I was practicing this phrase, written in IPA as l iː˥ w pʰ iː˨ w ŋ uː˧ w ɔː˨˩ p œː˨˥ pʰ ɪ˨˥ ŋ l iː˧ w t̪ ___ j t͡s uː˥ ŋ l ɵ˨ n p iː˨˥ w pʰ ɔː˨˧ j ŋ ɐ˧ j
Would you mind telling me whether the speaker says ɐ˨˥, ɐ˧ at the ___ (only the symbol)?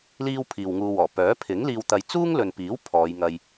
ɐ˧